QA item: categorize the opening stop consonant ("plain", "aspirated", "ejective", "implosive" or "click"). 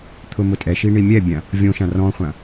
aspirated